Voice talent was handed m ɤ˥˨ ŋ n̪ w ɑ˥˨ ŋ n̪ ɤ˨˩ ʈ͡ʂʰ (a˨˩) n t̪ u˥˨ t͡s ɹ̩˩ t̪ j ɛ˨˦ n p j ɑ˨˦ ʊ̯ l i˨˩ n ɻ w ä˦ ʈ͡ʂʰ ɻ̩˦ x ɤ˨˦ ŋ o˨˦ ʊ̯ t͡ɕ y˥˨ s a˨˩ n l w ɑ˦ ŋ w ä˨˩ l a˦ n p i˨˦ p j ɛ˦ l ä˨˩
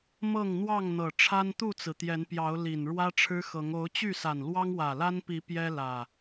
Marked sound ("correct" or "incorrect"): incorrect